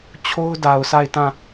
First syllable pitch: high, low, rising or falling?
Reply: high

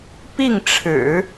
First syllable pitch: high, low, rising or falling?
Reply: falling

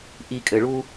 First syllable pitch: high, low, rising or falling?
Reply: low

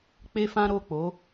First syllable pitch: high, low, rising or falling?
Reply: high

